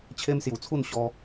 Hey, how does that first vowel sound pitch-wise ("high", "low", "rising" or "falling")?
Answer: high